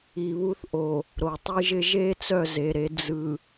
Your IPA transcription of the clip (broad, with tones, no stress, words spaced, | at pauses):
i˨βu˦θʔo˨ | ɾo˨tˤɯ˦ʒɪ˦ ʒe˦ t͡sœ˦˨ze˨ɾe˨˦ d͡zɯ˨